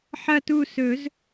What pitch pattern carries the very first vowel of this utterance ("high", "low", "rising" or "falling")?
falling